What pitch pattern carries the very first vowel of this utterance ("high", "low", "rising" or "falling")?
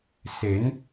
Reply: rising